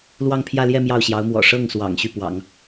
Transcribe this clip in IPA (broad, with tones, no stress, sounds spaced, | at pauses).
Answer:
l w ɑ˥˧ ŋ pʰ j ä˥˧ l j ɛ˥˧ m j ɑ˥˩ ʊ̯ ɕ j ɑ˧˥ ʊ̯ m w ɔ̰˨˩ ʂ ɤ˥˩ ŋ s w ɑ̰˨˩ ŋ ɕ y˥˩ p w ɑ̰˨˩˦ ŋ